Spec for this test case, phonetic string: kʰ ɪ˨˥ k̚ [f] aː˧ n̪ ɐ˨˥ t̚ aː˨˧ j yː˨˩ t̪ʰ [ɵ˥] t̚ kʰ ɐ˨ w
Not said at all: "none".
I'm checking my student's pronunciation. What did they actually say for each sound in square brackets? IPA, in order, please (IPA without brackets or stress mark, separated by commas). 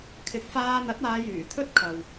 f, ɵ˥